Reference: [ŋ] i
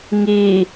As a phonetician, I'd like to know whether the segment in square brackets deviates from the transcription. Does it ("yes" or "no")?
no